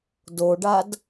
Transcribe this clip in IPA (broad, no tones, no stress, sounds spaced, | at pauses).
d o ɖ a d